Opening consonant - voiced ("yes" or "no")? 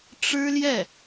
no